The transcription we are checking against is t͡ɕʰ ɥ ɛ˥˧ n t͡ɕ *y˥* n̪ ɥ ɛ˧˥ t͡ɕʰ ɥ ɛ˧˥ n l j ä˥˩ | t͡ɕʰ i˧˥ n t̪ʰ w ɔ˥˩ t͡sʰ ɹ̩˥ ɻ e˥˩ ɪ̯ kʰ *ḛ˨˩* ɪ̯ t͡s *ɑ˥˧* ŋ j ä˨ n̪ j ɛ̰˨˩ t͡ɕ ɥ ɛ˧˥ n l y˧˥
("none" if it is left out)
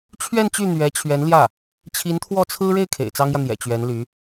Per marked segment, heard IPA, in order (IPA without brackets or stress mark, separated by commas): y˥˩, ḛ˨˩, ɑ˥